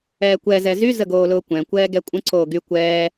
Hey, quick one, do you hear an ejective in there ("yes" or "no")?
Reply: yes